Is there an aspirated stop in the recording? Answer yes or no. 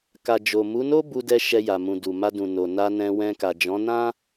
no